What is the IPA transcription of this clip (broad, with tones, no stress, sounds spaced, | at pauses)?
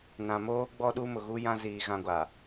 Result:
n ã˨ m oː˦ ɡ͡b ɔ˦ ɗ u˦ m ʊ˨ ɣ u˦ j ã˦ z iː˨ ɣ ã˦ ɡʷ a˨